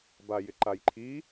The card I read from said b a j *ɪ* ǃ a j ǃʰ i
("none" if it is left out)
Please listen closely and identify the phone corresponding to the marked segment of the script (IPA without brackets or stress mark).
ɪ